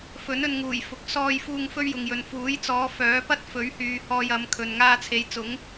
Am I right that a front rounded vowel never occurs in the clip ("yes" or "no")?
no